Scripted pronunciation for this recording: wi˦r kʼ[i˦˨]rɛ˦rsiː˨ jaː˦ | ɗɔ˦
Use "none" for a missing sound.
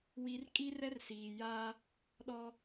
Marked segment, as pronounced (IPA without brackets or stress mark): i˦